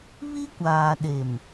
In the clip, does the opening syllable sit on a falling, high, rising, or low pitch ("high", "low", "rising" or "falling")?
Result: high